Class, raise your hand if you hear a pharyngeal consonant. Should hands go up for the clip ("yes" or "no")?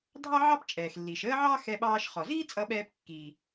yes